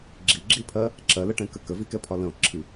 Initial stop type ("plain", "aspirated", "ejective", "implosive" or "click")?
click